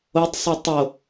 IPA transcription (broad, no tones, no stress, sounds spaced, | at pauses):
o tˤ sˤ y tˤ o